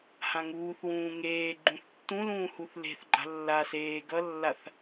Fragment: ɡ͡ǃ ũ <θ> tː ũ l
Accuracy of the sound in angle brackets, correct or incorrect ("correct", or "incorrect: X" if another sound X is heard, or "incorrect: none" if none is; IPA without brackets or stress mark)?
correct